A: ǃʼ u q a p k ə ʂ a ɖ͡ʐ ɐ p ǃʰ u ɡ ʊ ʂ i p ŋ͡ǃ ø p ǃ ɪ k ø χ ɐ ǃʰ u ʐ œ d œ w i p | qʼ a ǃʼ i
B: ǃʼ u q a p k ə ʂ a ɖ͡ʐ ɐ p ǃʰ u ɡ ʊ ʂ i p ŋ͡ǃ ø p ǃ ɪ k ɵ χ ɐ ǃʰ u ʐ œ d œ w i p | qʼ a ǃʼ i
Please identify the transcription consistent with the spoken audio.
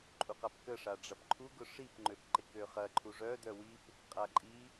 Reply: A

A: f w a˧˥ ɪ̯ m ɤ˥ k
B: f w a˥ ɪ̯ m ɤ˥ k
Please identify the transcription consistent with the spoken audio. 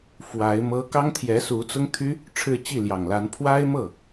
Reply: A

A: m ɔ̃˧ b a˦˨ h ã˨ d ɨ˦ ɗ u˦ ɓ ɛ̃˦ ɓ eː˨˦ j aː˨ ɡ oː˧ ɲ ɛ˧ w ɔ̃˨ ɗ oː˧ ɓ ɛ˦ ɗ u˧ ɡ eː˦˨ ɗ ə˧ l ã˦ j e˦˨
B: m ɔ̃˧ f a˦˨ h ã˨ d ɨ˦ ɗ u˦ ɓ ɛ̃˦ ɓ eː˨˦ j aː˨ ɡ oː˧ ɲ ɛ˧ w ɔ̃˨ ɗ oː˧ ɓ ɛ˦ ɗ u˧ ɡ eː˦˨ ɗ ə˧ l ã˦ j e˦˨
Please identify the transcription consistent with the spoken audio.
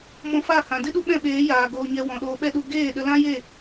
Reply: B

